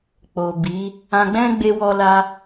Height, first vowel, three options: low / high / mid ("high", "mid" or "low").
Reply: mid